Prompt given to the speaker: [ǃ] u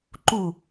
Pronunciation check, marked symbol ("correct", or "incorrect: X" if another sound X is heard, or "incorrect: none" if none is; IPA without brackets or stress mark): correct